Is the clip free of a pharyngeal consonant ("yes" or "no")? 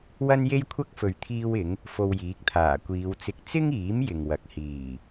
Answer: yes